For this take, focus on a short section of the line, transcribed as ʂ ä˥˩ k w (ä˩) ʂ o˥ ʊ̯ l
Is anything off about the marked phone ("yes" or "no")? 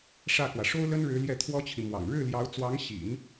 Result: no